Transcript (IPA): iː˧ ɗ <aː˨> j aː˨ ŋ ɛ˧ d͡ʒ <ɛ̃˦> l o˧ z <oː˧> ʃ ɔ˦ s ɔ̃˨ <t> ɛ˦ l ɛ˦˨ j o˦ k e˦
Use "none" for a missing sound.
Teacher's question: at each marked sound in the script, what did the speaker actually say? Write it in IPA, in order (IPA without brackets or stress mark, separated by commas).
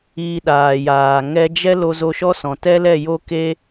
aː˨, ɛ˦, o˧, t